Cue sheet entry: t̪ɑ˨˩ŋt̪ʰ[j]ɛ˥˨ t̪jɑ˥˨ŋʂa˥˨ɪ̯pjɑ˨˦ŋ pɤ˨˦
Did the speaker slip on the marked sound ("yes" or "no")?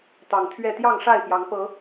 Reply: yes